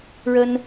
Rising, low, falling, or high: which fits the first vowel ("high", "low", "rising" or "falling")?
high